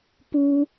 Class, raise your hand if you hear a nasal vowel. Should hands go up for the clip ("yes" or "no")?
no